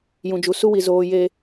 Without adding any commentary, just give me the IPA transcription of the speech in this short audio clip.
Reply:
jũ˨d͡ʒu˨ su˦wi˨ zoː˨je˨

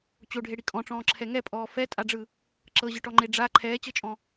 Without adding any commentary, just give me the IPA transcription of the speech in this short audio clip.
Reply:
t͡ɕoɖʱeɽi kʼɔ̃ʈ͡ʂɔ̃ːǁʰɛ ŋɛpʼɔː fɛtʼaɖ͡ʐɯ | ǁɤʑɯʈɔŋ͡ǃe ɖ͡ʐa ǃʰɛːt͡ɕɤt͡ʃʼɔ̃

